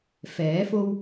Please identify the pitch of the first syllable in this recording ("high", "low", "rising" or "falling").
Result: rising